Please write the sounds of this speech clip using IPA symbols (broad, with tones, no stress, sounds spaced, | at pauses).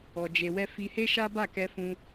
ɔ˧ d͡ʒ e˧ w ɛ˦ f i˧ h e˦ ʃ a˦ b a˦˨ k ɛ˧ f ũ˧